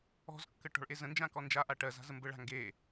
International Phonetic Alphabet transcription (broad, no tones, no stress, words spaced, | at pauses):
ɔ̤zkːə ʈɔ̤ɭʔezə̃nd͡ʒã kɔnd͡ʒaʔa ʈɜza̤ zəmbəɭa̤ ŋɡe